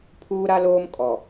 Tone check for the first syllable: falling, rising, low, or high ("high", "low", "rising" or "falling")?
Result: high